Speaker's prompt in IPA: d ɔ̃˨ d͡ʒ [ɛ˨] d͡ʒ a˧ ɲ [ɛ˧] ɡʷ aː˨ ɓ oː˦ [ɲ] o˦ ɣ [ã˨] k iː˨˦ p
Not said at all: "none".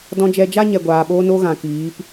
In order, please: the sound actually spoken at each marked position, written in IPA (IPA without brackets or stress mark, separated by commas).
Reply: ɛ˨, ɛ˨, n, ã˨